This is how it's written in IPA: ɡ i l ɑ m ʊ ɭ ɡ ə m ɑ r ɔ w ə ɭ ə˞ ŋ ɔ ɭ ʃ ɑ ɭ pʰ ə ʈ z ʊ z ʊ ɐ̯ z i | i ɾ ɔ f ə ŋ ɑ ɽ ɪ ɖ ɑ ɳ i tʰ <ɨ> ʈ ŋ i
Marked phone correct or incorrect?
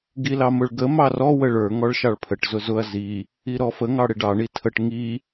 incorrect